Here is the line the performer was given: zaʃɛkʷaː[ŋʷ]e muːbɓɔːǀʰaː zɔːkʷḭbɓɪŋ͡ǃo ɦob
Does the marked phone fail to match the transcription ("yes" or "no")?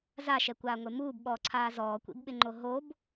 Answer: no